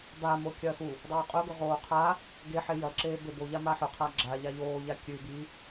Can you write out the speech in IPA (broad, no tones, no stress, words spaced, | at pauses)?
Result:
bamo kʲɐːxu | dˤoːqʼɵɡɵ ʁoːqʰa | ɡeħe jɐǁeː beboʎa maħɵqʰa ɡ͡ǁa ʎaʎoːʎa kʲʉ bi